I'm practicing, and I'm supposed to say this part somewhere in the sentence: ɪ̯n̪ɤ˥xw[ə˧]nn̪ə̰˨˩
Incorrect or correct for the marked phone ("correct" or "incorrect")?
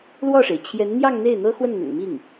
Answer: incorrect